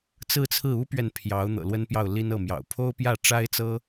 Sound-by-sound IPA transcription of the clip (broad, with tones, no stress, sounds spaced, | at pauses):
t͡s ɹ̩˥˧ t͡sʰ ɹ̩˥˩ u˥ p ɥ ɛ˨ n pʰ j ɑ˧˥ ʊ̯ n̪ ɤ̰˨˩ l w ə˥ n p j ɑ˥˩ ʊ̯ l i˥ n ɤ˥˩ m j ɑ̰˨˩ ʊ̯ pʰ o˥ ʊ̯ p j ä˥˩ ʈ͡ʂ a˥ ɪ̯ t͡s ɤ˥